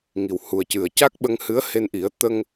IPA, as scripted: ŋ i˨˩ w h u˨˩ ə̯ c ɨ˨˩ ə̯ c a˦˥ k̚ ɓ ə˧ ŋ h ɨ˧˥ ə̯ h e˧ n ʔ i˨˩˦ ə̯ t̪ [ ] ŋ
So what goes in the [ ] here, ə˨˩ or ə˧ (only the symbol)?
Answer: ə˧